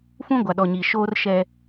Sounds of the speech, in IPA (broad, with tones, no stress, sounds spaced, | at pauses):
f ũ˦ ɡʷ a˨ ɗ ɔ˨ ɲ iː˨ ʃ oː˦ r ʃ ɛ˦